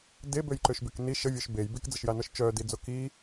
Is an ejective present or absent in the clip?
absent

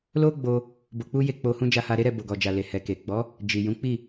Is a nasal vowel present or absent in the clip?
present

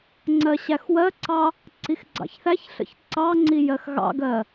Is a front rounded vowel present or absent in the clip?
absent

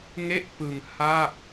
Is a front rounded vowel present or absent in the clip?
absent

